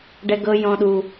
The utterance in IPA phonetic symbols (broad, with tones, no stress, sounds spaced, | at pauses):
ɖ ɛ˦ ɡ ɤ˦ j ɔ̃˦ ɗ u˦